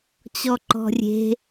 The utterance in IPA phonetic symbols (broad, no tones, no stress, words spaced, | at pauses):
t͡ɕɔǃɔ̤rʲe̤